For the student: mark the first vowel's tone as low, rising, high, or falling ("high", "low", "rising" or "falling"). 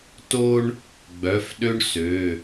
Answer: high